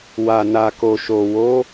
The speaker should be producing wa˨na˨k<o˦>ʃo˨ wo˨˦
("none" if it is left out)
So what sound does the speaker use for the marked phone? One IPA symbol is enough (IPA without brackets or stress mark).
o˨